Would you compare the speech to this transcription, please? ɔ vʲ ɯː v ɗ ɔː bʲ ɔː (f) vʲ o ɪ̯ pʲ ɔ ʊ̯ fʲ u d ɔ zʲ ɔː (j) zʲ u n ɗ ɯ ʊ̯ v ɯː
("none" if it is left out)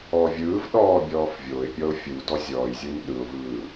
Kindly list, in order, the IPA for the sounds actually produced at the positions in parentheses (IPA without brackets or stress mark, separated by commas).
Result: f, j